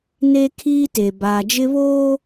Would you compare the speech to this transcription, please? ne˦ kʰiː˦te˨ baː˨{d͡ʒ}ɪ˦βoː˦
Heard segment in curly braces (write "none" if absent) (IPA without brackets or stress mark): d͡ʒ